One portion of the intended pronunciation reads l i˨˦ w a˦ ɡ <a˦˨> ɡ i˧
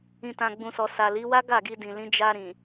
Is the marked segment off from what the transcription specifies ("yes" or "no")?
no